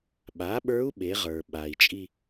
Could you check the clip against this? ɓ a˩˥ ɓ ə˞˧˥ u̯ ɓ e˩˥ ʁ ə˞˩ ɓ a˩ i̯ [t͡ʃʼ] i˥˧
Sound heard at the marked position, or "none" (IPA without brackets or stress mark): t͡ʃʼ